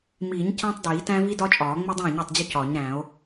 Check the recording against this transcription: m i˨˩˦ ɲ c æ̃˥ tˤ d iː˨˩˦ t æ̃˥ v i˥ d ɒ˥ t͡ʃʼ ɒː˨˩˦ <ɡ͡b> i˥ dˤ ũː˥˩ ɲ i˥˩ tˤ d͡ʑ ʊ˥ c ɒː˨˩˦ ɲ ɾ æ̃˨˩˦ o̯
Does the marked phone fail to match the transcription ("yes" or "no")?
yes